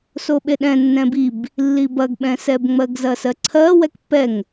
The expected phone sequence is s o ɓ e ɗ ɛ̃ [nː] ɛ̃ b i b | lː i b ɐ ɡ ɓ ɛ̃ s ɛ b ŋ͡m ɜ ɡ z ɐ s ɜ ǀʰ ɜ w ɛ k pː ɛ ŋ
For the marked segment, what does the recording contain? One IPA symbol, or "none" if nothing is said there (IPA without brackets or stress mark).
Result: nː